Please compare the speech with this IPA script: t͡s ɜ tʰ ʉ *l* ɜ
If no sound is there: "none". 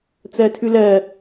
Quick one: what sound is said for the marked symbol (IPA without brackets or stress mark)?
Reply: l